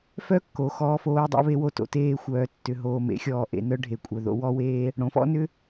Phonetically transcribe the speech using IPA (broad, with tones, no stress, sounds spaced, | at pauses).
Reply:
f œ˦ kː o˨ x ɔː˧ f oː˧ dˤ ɑ̰˦ β e˧ w o˧ t o̰˨ t eː˧ xʷ œː˨ tː ʏ˨ ɦ oː˨ m ḛ˨˦ xʲ ɔː˨ ʔ ḛ˨ n œ˦ ɖʱ e˨ kʷʼ œ˨ ð o̰˧ w ɔ˦ w eː˦ | ɽ õ˨ f ɔ̰˦ n ʏ˦